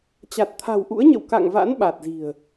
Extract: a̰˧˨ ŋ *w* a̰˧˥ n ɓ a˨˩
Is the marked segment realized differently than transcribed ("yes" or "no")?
yes